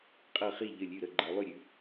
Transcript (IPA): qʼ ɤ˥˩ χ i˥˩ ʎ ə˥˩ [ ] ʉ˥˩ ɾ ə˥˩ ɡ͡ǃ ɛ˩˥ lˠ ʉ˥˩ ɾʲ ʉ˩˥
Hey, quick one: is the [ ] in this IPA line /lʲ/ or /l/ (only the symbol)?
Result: lʲ